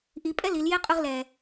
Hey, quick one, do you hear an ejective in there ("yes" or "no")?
yes